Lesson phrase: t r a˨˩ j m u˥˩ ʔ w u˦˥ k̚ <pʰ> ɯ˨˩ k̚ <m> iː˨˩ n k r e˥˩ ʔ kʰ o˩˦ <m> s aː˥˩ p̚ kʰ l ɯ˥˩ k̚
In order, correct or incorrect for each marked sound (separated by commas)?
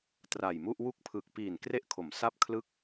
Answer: correct, incorrect, correct